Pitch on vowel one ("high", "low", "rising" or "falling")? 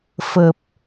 low